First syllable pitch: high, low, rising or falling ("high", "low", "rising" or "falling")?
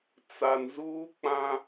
low